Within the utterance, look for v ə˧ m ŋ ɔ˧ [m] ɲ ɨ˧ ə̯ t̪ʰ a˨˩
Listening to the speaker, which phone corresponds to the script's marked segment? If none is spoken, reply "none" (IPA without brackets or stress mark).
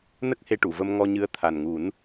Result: none